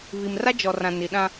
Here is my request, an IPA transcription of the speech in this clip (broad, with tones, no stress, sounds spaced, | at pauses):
β i˨ m r a˦ d͡ʒ ɔ˨ r ã˨ n i˨ ɗ ã˦